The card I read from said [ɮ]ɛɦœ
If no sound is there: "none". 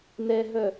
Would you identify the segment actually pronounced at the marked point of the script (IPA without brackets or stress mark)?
n